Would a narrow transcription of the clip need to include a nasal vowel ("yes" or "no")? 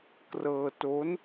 no